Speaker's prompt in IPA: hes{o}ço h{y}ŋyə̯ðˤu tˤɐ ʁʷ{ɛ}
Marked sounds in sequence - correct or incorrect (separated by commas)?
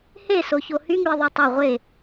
correct, correct, incorrect